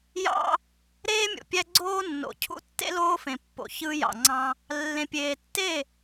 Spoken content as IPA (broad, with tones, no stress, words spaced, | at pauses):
jɑ̰˦ | ɾeː˦mʲo̰˨pʲæ˦ɡ͡ǀoː˦ nːo̰˨cʰṵ˦tːḛ˦ loː˦fẽ˨pːo̰˨ çɯ˦ jɑ̰˨ŋ͡ǀɑ̃˦ | lːẽ˨pʲeː˨tːe˦˨